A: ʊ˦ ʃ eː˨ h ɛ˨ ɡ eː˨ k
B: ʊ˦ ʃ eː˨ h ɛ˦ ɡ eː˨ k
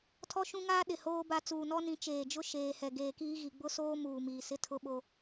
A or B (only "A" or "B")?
A